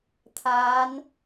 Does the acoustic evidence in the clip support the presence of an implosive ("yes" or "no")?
no